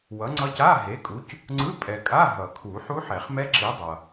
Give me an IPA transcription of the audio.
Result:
w ʌ˨˥ ŋ͡ǀ ʌ˦˥ c a˧˥˧ ɦ e˨˥ kʼ u˨˥ c | ŋ͡ǀ ɯ˧˥˧ pʼ ɛ˨ kʼ a˧˥˧ ɦ ʌ˨˩˦ kʰ u˨˩˦ ħ u˦˥ ħ ɛ˨˩˦ χ m ɛ˦˥ ǁ i˨˥ dˤ ʌ˨

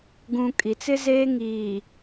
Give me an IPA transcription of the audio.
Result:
ɡ ũ˨ kʼ i˨ t͡s ɪ˦ z eː˦ ŋ iː˨

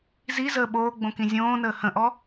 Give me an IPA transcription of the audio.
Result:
z i z əː ɓ oː ɡ͡b õ k ĩ zʲ õː n əː h ə̃ ʔ ɔ

